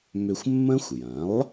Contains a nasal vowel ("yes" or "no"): yes